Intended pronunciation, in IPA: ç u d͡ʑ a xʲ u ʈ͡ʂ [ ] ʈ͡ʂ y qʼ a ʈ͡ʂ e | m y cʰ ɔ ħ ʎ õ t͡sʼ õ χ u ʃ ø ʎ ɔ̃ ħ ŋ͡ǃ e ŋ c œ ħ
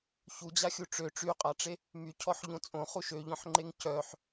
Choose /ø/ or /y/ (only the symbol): ø